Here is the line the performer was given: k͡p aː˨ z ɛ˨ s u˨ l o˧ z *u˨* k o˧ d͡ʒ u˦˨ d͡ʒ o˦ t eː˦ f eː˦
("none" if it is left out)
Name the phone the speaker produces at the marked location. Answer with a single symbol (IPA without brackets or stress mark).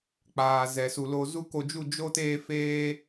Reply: u˦